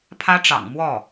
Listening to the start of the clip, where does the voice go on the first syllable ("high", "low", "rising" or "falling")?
high